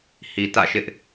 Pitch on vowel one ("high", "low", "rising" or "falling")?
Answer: low